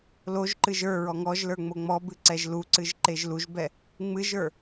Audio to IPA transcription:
l o ʒ ǃ ɨ ʒ ə˞ ɹ ɔ ŋ ɔ ʒ l ə˞ ŋ͡m o ŋ͡m ɔ b ɨ ǀ ɛ ʒ l u ǀ ɨ ʒ ǃ e ʒ l u ʒ b ɛ | ŋ͡m ɨ ʒ ə˞

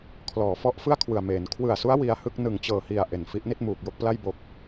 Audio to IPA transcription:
kʰ l ɔː˩˦ f ɔ˦˥ ʔ f ɯ˥˩ a̯ kʰ w ɯ˨˩ a̯ m eː˩˦ n kʰ w ɯ˨˩ a̯ s u˦˥ a̯ w i˧ a̯ h ɯ˥˩ k̚ n ɯ˨˩ ŋ t͡ɕ ɤː˨˩ h i˨˩ a̯ ʔ e˨˩ n f i˦˥ ʔ n i˥˩ t̚ m uː˨˩ k̚ j o˥˩ k̚ p l a˥˩ j b oː˨˩ k̚

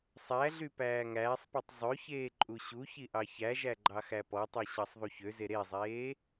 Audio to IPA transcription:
sˤ æ ɮ y p æː ŋ æː sˤ p i tˤ zˤ ø ç eː ǃʼ u ɕ u ç i ʔ ɑ ç æ ʒ æ ɡ͡ǃ ɑ x æ p ɔ tˤ y ɕ ɑ sˤ ðˤ u ç ø z e ɾ e zˤ eː

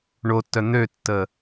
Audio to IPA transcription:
ɳ o tː œ n̪ ø tː ə

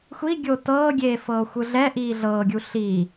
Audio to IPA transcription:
xʷ i ɡʲ o t ɤː ɡʲ eː f ɤː xʷ ɯ ɮ ɛ ʔ iː ɮ ɤː ɡʲ u ɬ i

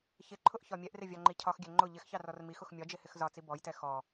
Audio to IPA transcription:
ç ɪ ǃʰ ʊ ʔ ç ɒ mʲ ɛ ʔ r ɪ vʲ ɑ ŋ͡ǃ i cʰ ɒ x ɡʲ ɛ ŋ͡ǃ ʊ ʎ ɪ x ç ɑ r ɔ r m i x ʊ x mʲ ɒ d͡ʒ ɪ h ɪ x z ɒ t͡s i b ɔ j t ɛ x ɔ

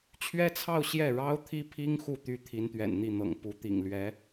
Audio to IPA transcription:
t͡ɕʰ ɥ ɛ˥ t͡sʰ ɑ˥˧ ʊ̯ ɕ j ɛ˥˩ ɻ ɑ˥ ʊ̯ t̪ʰ i˥ pʰ i˥ ŋ x u˥˩ t̪ y˥ t̪ʰ i˧˥ n t̪ ɥ ɛ̰˨˩ n n̪ i˥˩ n̪ ɤ̰˨˩ ŋ p u˧˥ t̪ ḭ˨˩ ŋ l ɥ ɛ˧˥

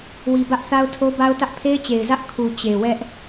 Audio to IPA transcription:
w i˨ b ä˦ ʔ θ a˦ ʊ̯ tʰ o˦ b a˦ ʊ̯ t ä˦ ʔ pʰ e˦ ɪ̯ t͡ɕ e˨ ɪ̯ z ä˦ ʔ kʰ u˨ t͡ɕ e˨ w ɛ˦ ʔ

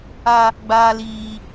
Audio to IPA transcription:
a˦ | ɡ͡b aː˦ l iː˦

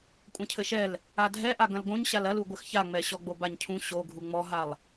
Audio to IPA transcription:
kʷʼ ɐ̃ cʰ ɘ ʃ ɛ l | a dʱ ɛ ʔ a ɡ ɐ̃ l ɡ õ ɲ ɕ a l ɐ l u ɡʷ ɘ x ç a ŋ͡m ɛ ɕ ɔ ɡ͡b o b a ɲ cʰ ũ ɕ o ɡʱ u ŋ͡m ɔ ɦ a lˠ

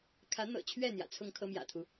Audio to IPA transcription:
kʰ ä˨˦ n̪ ɤ̰˨˩ t͡ɕʰ ɥ ɛ˥˨ n̪ j ä̰˨˩ t͡sʰ ʊ˥˨ ŋ kʰ ɤ˦ m j ä̰˨˩ t̪ʰ u˦

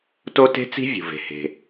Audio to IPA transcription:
t o˥ t e̤˥ t͡s i̤˥ vʲ ṳ˩ v e̤˩ h e̤˩

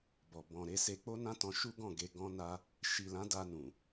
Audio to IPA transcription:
b ɔ˨ b ɔ̃˨ ɾ e˨˦ s e˧ k͡p o˦ n ã˦ t ɔ̃˧ ʃ u˦ ɡ ɔ̃˦˨ ɡ e˧ ɡ ɔ̃˦ n a˦ | ʃ i˨ l ã˨˦ d a˧ n ũ˨

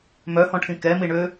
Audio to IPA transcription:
m œ h ɔ̃ ʈʰ ĩ k ɛ m i ɳ ø

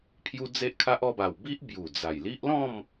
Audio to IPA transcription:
pʰ j u˧ d͡z e˦ ʔ kʰ a˦ ʔ ɔ˧ b a˨˩ w b i˦ ʔ b j u˨˩ d͡z a˨˩ j l i˦ ʔ l ɔ̃˥˧ m

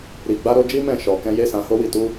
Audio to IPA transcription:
ɾ i˨ ɡ͡b a˧ ɾ o˧ d͡ʒ i˦ m ɛ̃˦˨ ʃ ɔ˨ k ɛ̃˧ j e˦ s ã˧ h o˦ w i˦˨ t u˧

